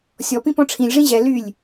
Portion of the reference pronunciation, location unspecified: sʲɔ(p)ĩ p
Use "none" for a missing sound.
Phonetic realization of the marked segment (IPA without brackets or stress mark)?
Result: p